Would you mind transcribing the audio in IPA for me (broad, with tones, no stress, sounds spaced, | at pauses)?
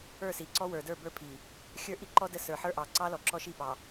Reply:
ə˞˦˨ s i˨ ǀ ɔ˦ w ə˞˨ d ə˞˦˨ b ə˞˦ pʰ i˨ | xʲ ə˞˦˨ ʔ i˦ ǃ ɔ˦ d ə˦ s ə˞˨ ħ ə˞˦ ʔ ɑ˨ ǀ ɑ˦ l ɔ˨ ǁ ɔ˦ ʃ i˦˨ p ɑ˨